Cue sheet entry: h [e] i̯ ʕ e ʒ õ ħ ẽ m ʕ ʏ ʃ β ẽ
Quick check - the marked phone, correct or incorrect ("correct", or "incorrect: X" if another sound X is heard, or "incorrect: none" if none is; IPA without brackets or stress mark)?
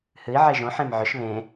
incorrect: ɨ